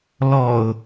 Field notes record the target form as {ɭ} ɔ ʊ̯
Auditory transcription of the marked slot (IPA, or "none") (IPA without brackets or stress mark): l